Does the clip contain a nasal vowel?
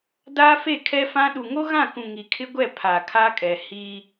yes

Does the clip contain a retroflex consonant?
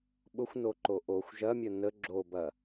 no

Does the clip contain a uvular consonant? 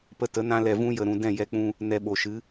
no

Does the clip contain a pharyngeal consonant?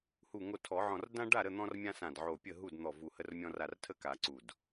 yes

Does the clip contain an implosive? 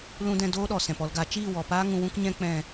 yes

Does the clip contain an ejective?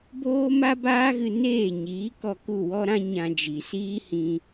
no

